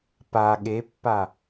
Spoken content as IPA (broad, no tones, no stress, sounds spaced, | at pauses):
p a ɠ e pː a